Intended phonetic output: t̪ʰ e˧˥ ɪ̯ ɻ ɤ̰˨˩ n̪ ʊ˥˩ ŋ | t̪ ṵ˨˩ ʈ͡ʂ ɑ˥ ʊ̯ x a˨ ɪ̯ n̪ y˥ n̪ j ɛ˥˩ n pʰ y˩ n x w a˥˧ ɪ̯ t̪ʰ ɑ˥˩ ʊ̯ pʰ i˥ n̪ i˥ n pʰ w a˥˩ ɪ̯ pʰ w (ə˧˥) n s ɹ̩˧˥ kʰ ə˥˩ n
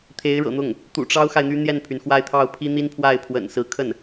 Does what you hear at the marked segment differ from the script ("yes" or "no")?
yes